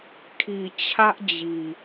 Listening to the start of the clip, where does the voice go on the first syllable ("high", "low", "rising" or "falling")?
low